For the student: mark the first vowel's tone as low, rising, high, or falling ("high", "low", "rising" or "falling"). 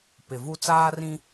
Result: low